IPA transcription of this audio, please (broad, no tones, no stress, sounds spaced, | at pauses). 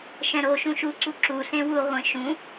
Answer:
ʃ ɛ̃ ɾ o ʃ ũ ʃ u ǀ u ǁ u ɬ ẽ w u ʁʷ ẽ ʃ ũ